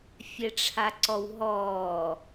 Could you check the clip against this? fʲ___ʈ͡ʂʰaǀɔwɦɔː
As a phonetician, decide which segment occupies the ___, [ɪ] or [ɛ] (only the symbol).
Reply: ɛ